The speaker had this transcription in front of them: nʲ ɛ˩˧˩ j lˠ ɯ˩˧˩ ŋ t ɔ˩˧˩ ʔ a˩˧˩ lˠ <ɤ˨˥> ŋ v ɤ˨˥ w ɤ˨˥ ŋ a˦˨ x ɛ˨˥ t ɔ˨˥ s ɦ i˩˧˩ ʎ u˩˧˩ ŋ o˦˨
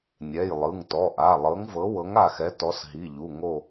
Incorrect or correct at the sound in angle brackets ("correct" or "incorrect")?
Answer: correct